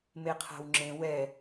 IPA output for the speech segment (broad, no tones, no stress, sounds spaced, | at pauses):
m e qʰ a̤ w ŋ͡ǁ ẽ w ɛ